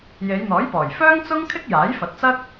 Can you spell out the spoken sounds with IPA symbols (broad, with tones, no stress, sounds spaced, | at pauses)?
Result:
j e˨˧ j n̪ ɔː˨˥ j p ɔː˨˩ j f œː˥ ŋ t͡s ʊ˥ ŋ kʰ ɪ˥ k̚ j aː˨˥ j f ɐ˨˥ t̚ t͡s ɐ˥ k̚